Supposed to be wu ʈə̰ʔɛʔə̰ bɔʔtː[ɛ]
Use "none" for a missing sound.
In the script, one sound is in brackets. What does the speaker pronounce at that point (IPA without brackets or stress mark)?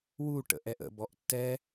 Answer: ɛ